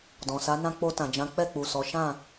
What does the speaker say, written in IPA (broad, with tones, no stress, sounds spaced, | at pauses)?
d ɔ̃˨ s a˨˦ n ã˧ k͡p o˧ t ã˨ d͡ʒ ã˨˦ k͡p ɛ˦˨ k͡p u˨ s ɔ˨˦ ʃ ã˦˨